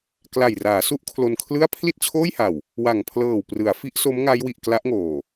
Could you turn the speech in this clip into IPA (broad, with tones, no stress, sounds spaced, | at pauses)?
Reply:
k l a˨˩ j r aː˩˦ s u˦˥ ʔ kʰ l o˧ n kʰ l ɯ˥˩ a̯ pʰ l i˥˩ t̚ t͡ɕʰ oː˥˩ j h a˨˩ w | w a˨˩ ŋ pʰ l ɤː˨˩ w p r ɯ˩˦ a̯ f i˦˥ ʔ s o˦˥ m ŋ a˦˥ j w i˨˩ ʔ k l a˦˥ ʔ ŋ oː˨˩